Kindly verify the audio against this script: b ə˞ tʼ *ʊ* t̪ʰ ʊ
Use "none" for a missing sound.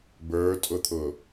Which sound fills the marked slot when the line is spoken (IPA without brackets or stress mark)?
ʊ